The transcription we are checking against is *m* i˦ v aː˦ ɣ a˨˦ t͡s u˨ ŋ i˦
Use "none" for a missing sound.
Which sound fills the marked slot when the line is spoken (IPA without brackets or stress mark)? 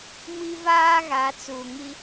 m